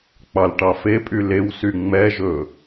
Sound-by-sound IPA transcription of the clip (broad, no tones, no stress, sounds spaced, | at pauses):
k͡p ɑ l ʈ ɑ f e pʼ y l e w s y ŋ͡m ɛ ʒ ɵ